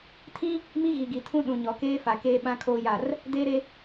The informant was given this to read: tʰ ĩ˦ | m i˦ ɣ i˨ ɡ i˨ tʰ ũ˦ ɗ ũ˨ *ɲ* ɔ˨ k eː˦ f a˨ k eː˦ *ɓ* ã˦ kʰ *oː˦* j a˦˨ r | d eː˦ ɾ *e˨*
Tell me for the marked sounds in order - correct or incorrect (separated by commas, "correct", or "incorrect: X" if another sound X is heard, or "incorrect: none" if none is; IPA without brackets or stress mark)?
correct, correct, correct, incorrect: e˦